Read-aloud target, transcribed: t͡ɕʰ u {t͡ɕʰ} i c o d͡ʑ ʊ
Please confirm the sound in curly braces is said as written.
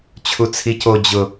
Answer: no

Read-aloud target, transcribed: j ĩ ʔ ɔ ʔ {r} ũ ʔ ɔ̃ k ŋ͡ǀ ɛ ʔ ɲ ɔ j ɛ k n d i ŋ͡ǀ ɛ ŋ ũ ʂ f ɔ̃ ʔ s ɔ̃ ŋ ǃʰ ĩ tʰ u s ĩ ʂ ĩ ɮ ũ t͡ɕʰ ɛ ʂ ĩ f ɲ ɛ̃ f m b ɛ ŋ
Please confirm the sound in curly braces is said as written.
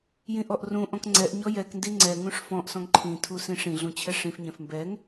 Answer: yes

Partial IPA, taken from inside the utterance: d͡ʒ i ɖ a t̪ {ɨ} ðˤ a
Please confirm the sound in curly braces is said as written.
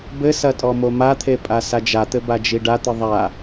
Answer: yes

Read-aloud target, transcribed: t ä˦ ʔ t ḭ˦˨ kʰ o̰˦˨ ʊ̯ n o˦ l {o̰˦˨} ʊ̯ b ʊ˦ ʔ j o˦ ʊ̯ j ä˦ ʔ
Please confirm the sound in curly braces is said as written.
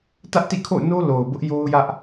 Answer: no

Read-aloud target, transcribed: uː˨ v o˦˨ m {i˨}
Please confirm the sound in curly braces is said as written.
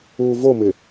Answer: no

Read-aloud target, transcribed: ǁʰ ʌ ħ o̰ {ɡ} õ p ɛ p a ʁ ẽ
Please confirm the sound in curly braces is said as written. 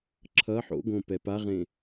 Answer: yes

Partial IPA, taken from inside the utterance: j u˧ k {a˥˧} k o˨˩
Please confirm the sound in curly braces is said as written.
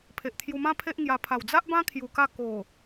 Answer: yes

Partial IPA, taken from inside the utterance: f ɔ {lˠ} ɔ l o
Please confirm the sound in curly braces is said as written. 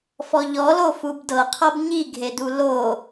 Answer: no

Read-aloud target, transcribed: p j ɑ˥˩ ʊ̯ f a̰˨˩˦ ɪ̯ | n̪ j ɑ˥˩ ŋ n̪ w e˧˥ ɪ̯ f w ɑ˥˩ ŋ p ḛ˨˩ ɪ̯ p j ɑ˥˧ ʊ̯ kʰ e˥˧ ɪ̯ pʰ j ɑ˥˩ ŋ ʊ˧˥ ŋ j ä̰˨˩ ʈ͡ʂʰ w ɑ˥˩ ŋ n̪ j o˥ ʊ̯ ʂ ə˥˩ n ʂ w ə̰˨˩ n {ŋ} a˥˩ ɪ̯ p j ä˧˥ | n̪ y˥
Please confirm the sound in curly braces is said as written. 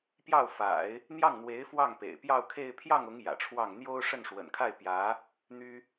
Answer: no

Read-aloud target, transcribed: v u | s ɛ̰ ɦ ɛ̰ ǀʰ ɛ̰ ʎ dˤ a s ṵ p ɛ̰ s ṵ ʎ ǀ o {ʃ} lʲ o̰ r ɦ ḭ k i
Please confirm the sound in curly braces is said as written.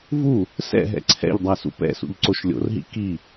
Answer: yes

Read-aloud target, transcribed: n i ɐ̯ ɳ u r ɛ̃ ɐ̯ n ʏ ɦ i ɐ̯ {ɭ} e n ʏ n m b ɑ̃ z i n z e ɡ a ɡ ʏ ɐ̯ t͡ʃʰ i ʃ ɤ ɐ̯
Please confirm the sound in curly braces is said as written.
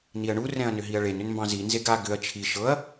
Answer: yes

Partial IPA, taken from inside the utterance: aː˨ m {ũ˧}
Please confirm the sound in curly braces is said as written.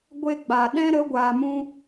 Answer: no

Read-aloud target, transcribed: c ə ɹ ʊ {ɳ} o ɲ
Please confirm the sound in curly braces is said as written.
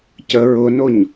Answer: no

